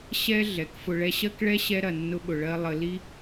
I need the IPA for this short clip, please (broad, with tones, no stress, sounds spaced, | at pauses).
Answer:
ɕ ɛ˧ ɮ ɛ˨˦ k f ʊ˨ ɭ ɛ˧ ɕ ɜ˦ k ɭ ɛ˦ ɕ ɛ˦ ɾ ɐ˨ nː ʊ˦ ɓ ʊ˨ ɭ ɜ˦ lˠ ə˧ l i˦